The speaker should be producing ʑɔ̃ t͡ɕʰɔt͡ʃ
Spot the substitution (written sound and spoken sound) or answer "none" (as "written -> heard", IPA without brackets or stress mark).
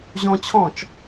ɔ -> ɔ̃